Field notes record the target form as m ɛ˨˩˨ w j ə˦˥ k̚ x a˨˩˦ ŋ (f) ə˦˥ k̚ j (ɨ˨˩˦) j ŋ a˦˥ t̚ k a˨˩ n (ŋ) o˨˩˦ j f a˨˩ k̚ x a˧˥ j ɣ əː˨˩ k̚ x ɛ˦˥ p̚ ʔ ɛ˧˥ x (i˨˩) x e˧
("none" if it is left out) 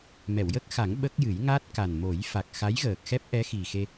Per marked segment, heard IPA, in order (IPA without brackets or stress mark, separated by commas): ɓ, ɨ˨˩˦, m, i˨˩